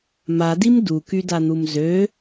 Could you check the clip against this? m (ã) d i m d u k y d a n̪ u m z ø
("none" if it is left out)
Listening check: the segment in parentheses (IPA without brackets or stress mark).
a